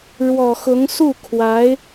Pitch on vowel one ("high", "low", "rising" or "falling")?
low